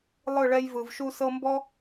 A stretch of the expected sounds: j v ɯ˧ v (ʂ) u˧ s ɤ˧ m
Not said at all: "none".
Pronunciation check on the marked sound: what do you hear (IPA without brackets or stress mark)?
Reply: ʃ